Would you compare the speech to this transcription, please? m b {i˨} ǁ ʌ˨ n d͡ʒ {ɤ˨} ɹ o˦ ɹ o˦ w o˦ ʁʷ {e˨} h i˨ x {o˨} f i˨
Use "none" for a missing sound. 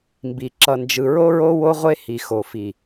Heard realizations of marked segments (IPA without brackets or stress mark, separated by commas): i˨, ɯ˨, e˦, o˨